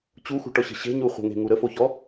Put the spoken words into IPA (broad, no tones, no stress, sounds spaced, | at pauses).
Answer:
t͡ɕ u x ṳ ʈ ɔ ɕ ə̤ ɕ e̤ ɲ u χʷ ə̤ ŋ e̤ ŋ u ɾ ə f o ç ɔ